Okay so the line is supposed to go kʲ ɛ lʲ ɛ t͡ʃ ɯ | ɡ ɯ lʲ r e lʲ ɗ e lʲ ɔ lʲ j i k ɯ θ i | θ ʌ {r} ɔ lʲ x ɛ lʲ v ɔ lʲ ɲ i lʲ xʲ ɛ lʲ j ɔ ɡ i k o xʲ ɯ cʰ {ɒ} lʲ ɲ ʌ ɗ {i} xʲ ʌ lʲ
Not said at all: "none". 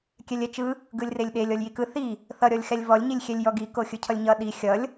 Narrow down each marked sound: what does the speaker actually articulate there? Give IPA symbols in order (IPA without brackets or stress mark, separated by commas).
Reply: ɾʲ, ʌ, i